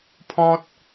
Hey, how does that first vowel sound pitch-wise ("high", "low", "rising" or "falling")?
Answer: high